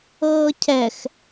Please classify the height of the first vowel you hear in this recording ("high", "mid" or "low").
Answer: mid